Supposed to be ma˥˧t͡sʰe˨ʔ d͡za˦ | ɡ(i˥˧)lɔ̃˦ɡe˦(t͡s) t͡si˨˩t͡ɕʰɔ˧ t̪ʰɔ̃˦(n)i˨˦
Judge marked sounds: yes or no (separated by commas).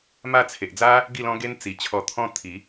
yes, no, no